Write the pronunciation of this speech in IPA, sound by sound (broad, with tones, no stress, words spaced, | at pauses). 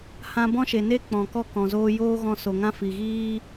hã˦ bɔ̃˦ʃe˨ne˦ k͡pɔ̃˨kɔ˦˨ kɔ̃˨zoː˦ joː˦ɣɔ̃˧ so˨ŋã˦fi˨ɣiː˦